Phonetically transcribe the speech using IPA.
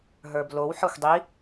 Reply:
ɦ ə˞ b l o w ħ ɒ xʷ dˤ i

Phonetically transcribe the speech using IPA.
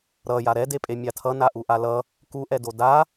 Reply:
ɾ ʌ j a ɾ ɛ d e pʼ e mʲ a tʰ ʌ n a ʔ u ʔ a l ʌ | k u ʔ ɛ d o d a

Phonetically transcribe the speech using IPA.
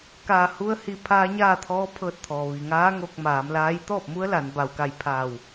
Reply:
k aː˧˩ h u˧ ə̯ h i˧˩ pʰ aː˧ ɲ aː˥˨ t̪ʰ ɔː˧˥ pʰ ɤː˧ t̚ t̪ʰ ɔː˩ ʋ i˩ ŋ aː˧˥ ŋ o˧ k̚ m aː˩˧ m l aː˧˥ j t̪ ɔː˥˨ p̚ m u˧˥ ə̯ l a˩˧ n b a˩ w k a˧˩ j pʰ aː˧˩ w

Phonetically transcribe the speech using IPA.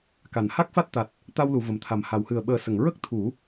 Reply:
k a˨˩˨ n h a˦˥ k̚ f a˦˥ t̚ t̪ a˨˩ t̚ | t̪ a˧ w l u˨˩˨ v ə˨˩ m t̪ʰ a˨˩ m h a˨˩˨ w h ɨ˨˩ ə̯ ɓ əː˨˩˦ s ə˨˩˨ ŋ ɹ ə˦˥ k̚ t̪ʰ u˨˩˦

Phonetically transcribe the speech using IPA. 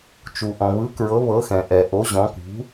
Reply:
t͡ʃ u˩ ʔ ɔ̃˩ β ɯ˩˥ k ɹ ɤ˩˥ β ɤ˩˥ x ɛ̃˩ ʔ ɛ˩ ʔ o˩˥ ʑ ɔ̃˩˥ k ṳ˩˥

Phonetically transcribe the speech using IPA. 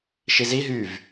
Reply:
ʃ i z i ɦ y v

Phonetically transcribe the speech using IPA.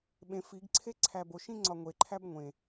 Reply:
ɓ ẽ f i ɡ ǀʰ e ǀʰ æ b o ʃ ĩ ŋ͡ǀ ɒ ŋʷ e ǃʰ æ b ŋʷ ẽ

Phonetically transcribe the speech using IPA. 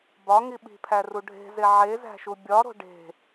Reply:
b ɒ ŋ i ɓ i̤ pʰ æ r u ɖʱ e̤ z e ʕ e z æ̤ ʃ u bʲ ɒ ɾ o̤ ɖ e̤

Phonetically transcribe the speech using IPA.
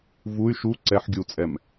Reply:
v u y̯ ʃ u ǀ ɛ ħ ɡʲ u t͡sʼ ɛ m

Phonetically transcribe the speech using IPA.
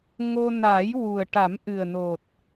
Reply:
ŋ o˧ n aː˨˩˦ j w u˨˩ ə̯ ʈ a˨˩˦ m ʔ ɨ˨˩ ə̯ n o˨˩ t̚

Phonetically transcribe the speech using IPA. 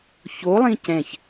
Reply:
ç o lˠ ĩ c ɛ̃ ç

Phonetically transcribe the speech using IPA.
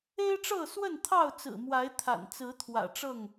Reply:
e˦ ɪ̯ ʈ͡ʂ ɤ˥˨ s w ə˥˨ n t̪ʰ ɑ˥˨ ʊ̯ t͡s ɹ̩˨˩ m w a˨˦ ɪ̯ t̪ʰ a̰˨˩ n t͡s ɹ̩˨˦ t̪ʰ w ä̰˨˩ ʈ͡ʂ ɤ˥˨ ŋ

